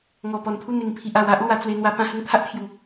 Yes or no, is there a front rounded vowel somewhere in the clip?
no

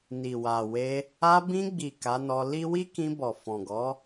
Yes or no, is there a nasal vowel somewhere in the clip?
yes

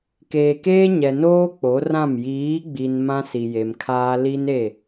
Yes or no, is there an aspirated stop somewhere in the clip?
yes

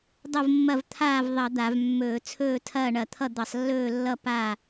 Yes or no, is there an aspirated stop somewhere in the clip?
yes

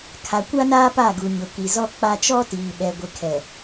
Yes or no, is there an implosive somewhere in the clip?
yes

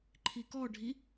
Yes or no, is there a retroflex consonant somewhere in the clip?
yes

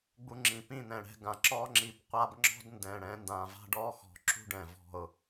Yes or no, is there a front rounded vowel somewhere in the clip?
no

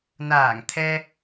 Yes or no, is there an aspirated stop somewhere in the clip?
yes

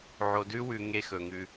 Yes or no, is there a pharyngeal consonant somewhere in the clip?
yes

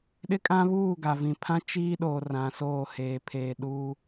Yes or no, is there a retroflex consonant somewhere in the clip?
no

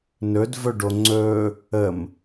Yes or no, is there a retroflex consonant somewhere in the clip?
yes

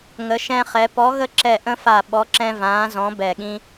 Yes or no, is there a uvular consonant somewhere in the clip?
yes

